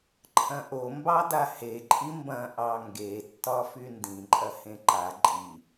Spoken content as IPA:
ǃʰ ɐ̃ ʔ o m b ɑ d a h e ǃʼ i m b ɐ̃ ʔ ɑ ŋ ɡ e tː ɒ f y n d ĩ ǃʼ ɐ h ẽ ǃ a ǃʼ i

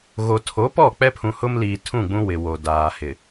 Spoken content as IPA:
ɣ o˨ tʰ o˨˦ p ɔ˦˨ k͡p ɛ˦ pʰ ũ˨ h ʊ˦ m l iː˨ tʰ ũ˦˨ ɡ͡b ũ˦ w ɪ˨ w o˨ d aː˨ h ɪ˨

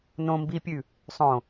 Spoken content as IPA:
n õ m b i pʲ ʉ | sˤ õ

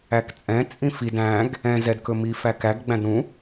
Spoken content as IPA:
æ k t͡sʼ ɛ̃ t͡sʼ ĩ f i d æ̃ ɡ | ɛ̃ z ɛ d k ɵ m i f æ k æ ɡ ɡ͡b æ̃ d ɾ ũ

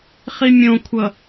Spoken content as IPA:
χ i mʲ õ kʷʰ ʌ

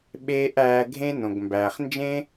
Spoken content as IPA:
ɓ eː˥ ʔ æː˧ ɡʱ ẽ˥ n õ˩ ɡ m b æː˩ χ n d͡ʒ ẽ˥

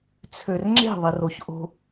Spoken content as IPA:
t͡sʰ ø r ŋ͡ǁ e̤ ðˤ i r o ç ʔ o̤

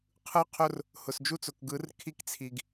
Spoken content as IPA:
qʰ ɯ˦ qʰ ʊ˦ r | h ʊ˨ s d͡ʒ u˦ t͡s ʊ˨ k ɡ ɯ˨˦ r kʰ i˦ k t͡sʰ i˨ ɡ

